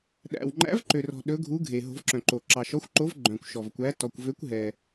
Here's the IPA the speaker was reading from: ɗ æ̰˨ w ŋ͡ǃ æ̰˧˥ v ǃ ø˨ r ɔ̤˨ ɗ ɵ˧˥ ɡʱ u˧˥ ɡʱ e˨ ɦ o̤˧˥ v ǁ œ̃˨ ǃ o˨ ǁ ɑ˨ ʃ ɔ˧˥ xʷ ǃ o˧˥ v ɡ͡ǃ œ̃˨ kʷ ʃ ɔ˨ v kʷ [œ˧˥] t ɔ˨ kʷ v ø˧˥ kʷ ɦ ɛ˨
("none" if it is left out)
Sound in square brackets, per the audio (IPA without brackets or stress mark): æ˧˥